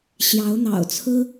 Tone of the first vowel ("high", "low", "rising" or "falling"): rising